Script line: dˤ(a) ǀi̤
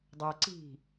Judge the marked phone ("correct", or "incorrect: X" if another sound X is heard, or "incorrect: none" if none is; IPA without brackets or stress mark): correct